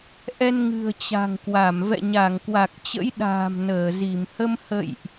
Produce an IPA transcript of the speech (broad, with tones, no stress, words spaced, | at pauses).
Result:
ʔɛ˧nŋɨ̤˨˩ə̯ t͡ɕa̤˨˩ŋkwa˧˩m vɛ̰˧˨ɲa˧˩ŋkwa˨˩k̚ t͡ɕə̰˧˥jɗa̤ː˨˩m nəː˧˩zi˧˩m hə˧mhə̰˧˨jʔ